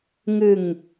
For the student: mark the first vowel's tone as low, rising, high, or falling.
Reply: low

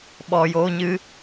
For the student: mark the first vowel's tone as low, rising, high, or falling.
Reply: low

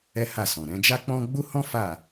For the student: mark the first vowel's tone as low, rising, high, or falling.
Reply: high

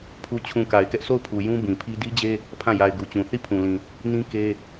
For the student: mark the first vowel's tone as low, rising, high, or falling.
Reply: low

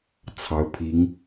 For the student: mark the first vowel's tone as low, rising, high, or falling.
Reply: rising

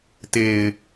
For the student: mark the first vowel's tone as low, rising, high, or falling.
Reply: low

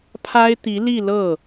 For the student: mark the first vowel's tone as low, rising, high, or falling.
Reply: high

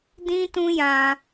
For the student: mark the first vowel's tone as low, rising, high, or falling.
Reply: high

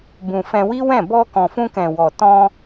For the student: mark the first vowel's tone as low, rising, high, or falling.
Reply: low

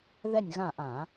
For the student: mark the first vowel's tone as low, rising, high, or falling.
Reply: falling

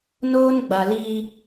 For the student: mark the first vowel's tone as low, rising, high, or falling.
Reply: high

